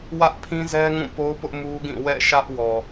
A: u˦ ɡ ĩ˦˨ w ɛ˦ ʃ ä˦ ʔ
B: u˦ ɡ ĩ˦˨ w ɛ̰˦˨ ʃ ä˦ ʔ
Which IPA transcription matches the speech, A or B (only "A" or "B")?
B